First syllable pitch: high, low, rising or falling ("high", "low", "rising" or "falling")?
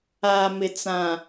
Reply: low